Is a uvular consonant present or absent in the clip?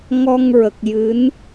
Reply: absent